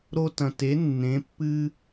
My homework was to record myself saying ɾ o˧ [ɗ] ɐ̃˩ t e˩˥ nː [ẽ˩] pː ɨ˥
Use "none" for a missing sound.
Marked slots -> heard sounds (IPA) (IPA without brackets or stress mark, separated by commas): t, ẽ˩˥